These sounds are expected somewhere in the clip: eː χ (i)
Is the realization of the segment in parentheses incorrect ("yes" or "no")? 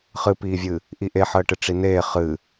yes